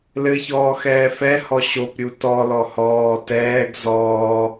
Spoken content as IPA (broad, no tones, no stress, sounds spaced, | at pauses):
l ɘ ç ɔː x ɛː f ɛ h ɔ ɕ o p ɾʲ u t ɔ l ɔ h ɔː t ɛː ɡ z ɔː